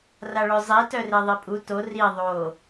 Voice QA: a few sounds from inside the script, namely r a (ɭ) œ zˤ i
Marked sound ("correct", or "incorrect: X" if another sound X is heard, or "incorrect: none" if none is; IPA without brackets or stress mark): correct